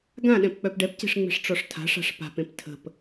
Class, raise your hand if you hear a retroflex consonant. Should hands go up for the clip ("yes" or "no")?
yes